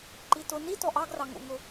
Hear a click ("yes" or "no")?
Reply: yes